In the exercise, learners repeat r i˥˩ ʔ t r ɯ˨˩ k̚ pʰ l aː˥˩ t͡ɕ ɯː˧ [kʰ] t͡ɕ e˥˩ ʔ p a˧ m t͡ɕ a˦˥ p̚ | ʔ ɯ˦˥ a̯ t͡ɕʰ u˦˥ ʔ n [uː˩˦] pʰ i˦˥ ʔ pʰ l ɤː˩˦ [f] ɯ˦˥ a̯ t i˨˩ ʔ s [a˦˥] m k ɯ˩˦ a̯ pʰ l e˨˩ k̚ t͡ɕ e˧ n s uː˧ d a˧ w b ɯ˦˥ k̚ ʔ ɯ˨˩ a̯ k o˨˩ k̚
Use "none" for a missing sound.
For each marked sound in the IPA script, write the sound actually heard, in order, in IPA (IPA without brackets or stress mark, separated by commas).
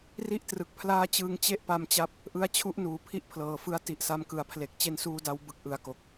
ŋ, uː˩˦, f, a˧